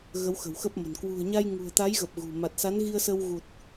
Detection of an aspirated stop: absent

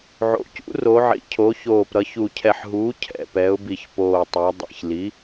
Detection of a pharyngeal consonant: present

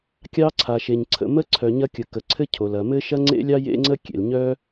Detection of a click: present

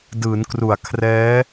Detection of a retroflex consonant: absent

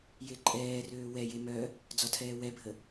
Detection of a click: present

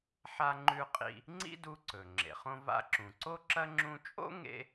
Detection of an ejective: present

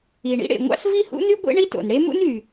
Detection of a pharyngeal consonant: absent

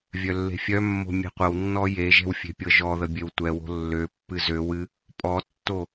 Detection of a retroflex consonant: absent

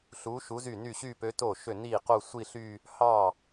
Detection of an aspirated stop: absent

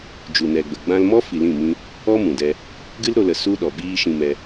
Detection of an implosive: present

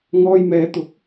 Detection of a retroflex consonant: absent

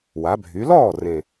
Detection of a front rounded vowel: present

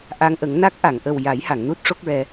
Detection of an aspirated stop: absent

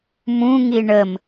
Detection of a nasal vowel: present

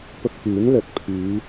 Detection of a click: absent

